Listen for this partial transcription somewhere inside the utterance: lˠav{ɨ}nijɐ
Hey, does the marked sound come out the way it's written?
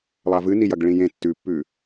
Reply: yes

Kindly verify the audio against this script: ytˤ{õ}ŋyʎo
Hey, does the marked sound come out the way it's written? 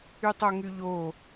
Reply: no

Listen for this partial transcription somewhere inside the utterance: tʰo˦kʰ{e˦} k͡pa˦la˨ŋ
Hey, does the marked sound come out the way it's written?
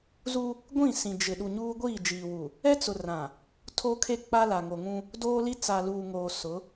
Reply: yes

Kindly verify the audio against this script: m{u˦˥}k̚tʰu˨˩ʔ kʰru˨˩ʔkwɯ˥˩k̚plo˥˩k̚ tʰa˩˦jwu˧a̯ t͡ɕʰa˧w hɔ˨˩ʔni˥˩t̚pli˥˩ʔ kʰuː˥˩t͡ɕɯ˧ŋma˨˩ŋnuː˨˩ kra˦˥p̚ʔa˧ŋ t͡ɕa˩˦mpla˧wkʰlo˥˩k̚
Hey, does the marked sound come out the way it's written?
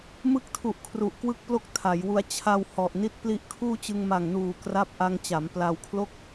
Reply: no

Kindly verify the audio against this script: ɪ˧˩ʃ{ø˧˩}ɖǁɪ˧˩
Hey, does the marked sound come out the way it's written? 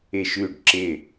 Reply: no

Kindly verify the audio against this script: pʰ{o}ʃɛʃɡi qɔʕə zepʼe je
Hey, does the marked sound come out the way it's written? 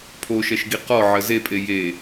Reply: yes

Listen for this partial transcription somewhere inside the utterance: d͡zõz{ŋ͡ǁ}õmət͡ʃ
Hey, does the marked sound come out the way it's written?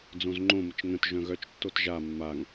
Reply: no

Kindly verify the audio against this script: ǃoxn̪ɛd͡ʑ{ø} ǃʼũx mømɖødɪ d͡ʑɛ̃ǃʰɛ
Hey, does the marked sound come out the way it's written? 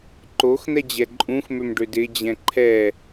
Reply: no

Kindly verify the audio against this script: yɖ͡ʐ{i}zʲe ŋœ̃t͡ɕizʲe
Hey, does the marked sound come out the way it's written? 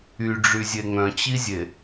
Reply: no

